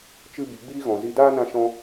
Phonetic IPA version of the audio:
t͡ʃ ɨ˧ b i˨ ɡ͡b iː˦ ɣ ɔ̃˨ z i˧ d aː˦ n ã˧ ʃ ɔ̃˦

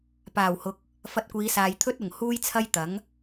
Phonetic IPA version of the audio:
p aː˨˩ w h ʊ˨˥ k̚ | f ɐ˧ t̚ kʷ iː˨˧ s aː˨ j t̪ʰ ɵ˥ t̚ ʊ˨˩ ŋ h uː˥ j t͡sʰ ɐ˥ j t̪ ɐ˨˥ ŋ

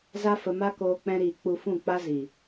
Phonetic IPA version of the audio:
z a˦ f ə˧ m a˦ k oː˧ k͡p ɛ̃˦ ɾ iː˧ k͡p u˧ f ũ˦˨ k͡p a˦ z i˨

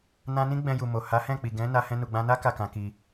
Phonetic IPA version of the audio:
n ã˧ n ĩ˦ ɡ͡b ɛ̃˧ j u˨ m o˨ h a˨˦ h ɛ̃˦˨ k͡p i˨ ɡ ɛ̃˨˦ n a˦ h ɛ̃˧ n u˨ ɡ͡b ã˧ n a˦ k a˦˨ k ã˧ k i˧

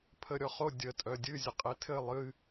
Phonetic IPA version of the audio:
pʰ ə ɾʲ ɔ χ o dʲ ə tʼ œ dʲ ɨ zʲ ə qʼ e tʰ ɘ lˠ ɨ

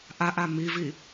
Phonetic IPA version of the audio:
ʔ a ʔ a m i v i

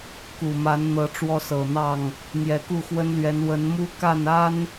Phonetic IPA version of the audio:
k u˨˩ m a˨˦ n n̪ ɤ˨˦ ʈ͡ʂ w ɔ˦ s ɤ˨˩ n̪ ɑ˥˨ ŋ | n̪ j ɛ˨˩ k u˥˨ x w ə˦ n l ɥ ɛ˨˦ n w ə˨˦ n m u˦ k a˥˨ n a˦ n

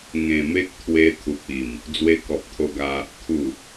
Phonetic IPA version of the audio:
ŋ ẽ˨˩ m e˦ k̚ t̪ʰ w e˧ t̪ʰ u˨ p̚ i˨˩ m | d͡z w e˧ k ɔ˨ p̚ t̪ʰ o˧ ɡ a˧ | t̪ʰ u˨˩

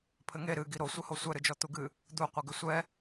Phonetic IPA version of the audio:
pʰ ɘ ŋ e ɾ ɨ ɡ i ɾ o sʷ ɘ h o sʷ ɛ ɾ ɨ d͡ʒ ɔ t̪ u ɡ ɨ | d̪ u qʷ ɨ ɡ ɘ sʷ ɛ

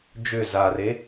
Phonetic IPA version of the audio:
d͡ʒ ʏ z a r e

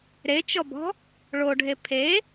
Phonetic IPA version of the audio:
ɾ e t͡ʃ ɔ b ɔ̤ | ɭ o ɖʱ e pʰ e

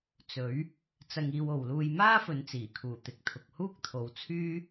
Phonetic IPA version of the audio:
t͡s ɵ˨˥ ɥ | t͡s ɐ˧ ŋ iː˧ w o˨ w l uː˧ j m aː˥ f ɵ˨˧ n t͡s iː˨˩ kʰ uː˨˩ t̪ ɪ˨ k̚ t̪ʰ ʊ˨ k̚ h uː˥ k̚ t̪ʰ o˨˧ w t͡sʰ yː˥

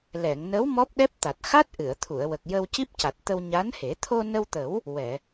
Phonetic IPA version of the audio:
l ɛ˨˩˨ ŋ n ə˧˥ w m ɔ˦˥ p̚ ɗ ɛ˦˥ p̚ t̪ a˨˩ t̚ x a˦˥ t̚ ʔ ɨ˨˩˨ ə̯ t̪ʰ u˨˩˨ ə̯ w ə˨˩ k̚ j ə˧ w c i˦˥ p̚ c a˨˩ t̚ t̪ ə˧ w ɲ a˧˥ n h e˨˩˦ t̪ʰ o˧ n ə˧ w t̪ ə˨˩˦ w | w ɛ˨˩˨

